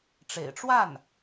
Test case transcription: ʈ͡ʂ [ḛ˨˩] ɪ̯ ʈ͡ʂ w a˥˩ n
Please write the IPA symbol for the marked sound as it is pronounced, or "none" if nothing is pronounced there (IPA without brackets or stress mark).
ḛ˨˩